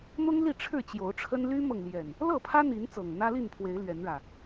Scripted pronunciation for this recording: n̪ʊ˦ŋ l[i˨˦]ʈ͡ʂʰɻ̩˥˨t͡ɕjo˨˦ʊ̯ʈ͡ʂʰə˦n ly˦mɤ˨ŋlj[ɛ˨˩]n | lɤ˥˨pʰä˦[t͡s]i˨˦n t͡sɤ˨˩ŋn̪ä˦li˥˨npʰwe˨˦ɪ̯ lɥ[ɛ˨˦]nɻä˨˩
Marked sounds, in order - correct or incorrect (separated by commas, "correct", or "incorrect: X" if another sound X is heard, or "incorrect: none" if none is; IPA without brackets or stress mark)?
incorrect: i˥˨, correct, incorrect: n̪, correct